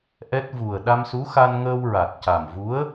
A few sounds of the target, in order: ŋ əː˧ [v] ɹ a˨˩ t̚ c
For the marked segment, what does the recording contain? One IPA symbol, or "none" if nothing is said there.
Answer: w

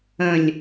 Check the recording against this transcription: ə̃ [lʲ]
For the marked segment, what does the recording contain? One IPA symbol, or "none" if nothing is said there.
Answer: lʲ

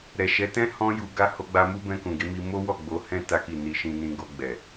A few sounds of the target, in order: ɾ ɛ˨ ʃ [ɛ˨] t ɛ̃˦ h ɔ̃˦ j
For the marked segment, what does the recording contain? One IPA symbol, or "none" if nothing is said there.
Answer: ɛ˨˦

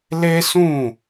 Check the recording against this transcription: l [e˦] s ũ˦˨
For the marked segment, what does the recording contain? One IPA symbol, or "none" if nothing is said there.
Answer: e˦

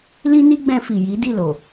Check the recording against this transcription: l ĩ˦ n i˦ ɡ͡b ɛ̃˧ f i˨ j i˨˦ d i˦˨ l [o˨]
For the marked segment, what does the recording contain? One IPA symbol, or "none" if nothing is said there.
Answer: o˨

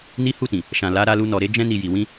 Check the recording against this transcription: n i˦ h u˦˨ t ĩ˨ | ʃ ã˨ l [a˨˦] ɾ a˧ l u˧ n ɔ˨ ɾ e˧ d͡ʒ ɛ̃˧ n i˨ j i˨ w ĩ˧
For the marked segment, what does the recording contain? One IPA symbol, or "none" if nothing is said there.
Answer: a˨˦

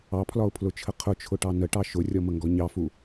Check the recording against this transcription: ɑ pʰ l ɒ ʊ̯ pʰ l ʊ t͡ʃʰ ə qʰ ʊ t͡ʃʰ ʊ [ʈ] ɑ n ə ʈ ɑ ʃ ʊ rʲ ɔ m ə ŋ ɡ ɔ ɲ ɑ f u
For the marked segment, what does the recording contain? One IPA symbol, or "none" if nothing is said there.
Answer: ʈ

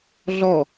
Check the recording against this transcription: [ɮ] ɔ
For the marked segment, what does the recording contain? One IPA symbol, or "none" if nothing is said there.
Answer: ɮ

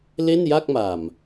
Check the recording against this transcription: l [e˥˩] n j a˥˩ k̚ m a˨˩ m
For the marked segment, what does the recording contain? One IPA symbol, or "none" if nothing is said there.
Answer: e˥˩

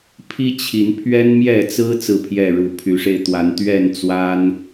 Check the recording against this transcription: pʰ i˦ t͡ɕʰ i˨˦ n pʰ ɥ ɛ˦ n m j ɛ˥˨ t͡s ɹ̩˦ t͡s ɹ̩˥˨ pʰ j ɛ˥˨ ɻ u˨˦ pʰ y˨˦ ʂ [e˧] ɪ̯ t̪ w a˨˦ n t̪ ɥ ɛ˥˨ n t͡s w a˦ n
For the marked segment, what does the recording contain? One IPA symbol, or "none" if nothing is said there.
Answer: e˧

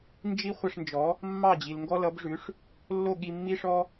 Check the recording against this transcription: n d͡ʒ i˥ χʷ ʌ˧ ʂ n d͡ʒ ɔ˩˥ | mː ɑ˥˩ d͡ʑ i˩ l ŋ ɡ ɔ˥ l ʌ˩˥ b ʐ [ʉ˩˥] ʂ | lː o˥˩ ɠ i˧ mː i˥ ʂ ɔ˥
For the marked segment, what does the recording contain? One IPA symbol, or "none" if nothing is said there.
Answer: ʉ˩˥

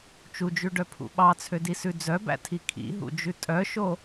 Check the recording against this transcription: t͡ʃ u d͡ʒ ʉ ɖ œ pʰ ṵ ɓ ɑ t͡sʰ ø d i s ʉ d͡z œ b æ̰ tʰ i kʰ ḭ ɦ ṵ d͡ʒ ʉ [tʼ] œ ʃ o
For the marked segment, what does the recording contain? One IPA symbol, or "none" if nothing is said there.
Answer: tʼ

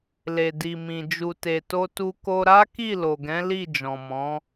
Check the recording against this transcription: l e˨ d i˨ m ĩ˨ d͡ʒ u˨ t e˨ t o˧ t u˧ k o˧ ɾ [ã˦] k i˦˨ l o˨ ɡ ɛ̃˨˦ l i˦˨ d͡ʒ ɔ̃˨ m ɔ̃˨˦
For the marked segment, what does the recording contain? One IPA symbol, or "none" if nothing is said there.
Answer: a˦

